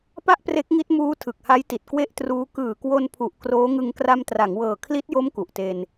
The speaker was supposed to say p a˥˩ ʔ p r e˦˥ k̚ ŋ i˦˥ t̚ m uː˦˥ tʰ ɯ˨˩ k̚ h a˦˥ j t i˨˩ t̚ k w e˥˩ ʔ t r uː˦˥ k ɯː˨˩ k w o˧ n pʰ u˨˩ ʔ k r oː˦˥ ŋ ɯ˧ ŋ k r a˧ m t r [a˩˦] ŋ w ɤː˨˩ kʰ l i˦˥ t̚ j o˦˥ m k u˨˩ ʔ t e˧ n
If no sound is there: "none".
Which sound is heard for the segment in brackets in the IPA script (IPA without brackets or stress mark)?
a˩˦